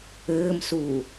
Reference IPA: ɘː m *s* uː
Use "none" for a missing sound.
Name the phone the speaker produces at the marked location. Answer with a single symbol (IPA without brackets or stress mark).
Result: s